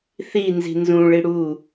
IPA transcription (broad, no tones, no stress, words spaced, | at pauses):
θi nzi̤nzũɭi ɽu